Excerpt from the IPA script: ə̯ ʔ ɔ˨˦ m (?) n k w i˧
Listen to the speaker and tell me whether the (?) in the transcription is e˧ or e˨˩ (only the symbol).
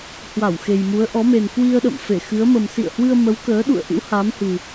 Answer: e˨˩